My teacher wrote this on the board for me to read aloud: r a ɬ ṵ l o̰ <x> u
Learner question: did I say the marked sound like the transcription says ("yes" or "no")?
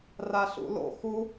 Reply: yes